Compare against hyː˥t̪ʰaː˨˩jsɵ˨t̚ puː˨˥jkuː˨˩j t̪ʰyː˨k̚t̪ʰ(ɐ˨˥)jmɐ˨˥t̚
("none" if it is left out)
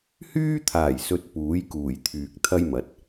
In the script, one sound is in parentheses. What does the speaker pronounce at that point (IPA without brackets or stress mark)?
ɐ˥